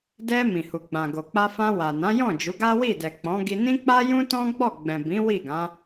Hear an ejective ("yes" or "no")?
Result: no